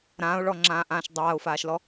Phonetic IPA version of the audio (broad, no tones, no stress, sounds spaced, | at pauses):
ɾ ãː ʊ̯ ɭ ɔ ŋ͡ǁ ãː ʔ ãː ʃ dˤ aː ʊ̯ f aː ʃ l ɔ